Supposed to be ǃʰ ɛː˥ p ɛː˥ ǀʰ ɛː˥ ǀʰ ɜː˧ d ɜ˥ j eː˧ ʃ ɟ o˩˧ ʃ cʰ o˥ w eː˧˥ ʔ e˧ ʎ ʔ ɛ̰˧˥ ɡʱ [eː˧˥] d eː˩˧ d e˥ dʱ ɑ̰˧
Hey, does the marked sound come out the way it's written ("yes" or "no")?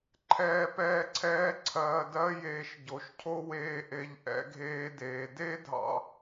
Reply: yes